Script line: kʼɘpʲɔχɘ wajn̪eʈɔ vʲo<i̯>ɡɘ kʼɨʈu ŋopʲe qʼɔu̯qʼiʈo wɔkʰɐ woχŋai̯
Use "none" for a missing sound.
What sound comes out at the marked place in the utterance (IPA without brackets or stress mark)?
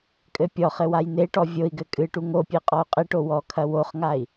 i̯